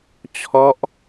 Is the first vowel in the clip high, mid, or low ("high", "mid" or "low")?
mid